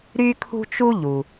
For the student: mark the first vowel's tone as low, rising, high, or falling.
high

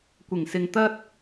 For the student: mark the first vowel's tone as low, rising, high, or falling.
low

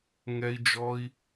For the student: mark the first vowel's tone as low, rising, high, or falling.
high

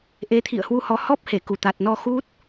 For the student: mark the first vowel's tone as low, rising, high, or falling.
rising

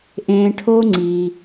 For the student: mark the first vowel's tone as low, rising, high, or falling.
low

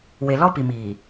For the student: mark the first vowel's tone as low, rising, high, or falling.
low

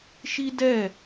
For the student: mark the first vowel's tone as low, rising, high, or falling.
high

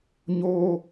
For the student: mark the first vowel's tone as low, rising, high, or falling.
high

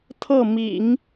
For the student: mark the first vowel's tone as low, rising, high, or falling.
falling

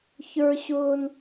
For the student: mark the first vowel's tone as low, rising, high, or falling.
high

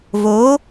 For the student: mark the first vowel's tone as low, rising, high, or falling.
rising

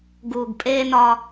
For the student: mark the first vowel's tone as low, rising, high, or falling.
low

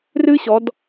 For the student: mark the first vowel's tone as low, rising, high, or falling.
high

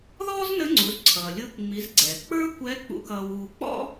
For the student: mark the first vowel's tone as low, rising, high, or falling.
high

